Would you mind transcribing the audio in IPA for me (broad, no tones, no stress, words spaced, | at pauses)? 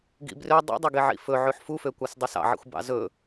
ɡḭbrø dˤṵdˤøɡeʕḭ fɵ ʕʉħfufø kʷɑsdˤisɑ̰ʕḭxʷ bɑ̰zɵ